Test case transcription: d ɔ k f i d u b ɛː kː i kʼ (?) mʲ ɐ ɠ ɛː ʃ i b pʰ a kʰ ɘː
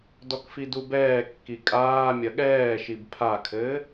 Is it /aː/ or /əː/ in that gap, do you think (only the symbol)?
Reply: aː